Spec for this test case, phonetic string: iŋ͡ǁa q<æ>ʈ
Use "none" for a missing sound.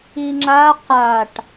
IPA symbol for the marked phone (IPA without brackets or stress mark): a